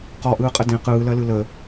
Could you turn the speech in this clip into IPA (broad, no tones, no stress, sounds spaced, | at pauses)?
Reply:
q ɔ ʔ ɯː qʼ ə d ẽ q ɯː l ɜ l ɯ l ə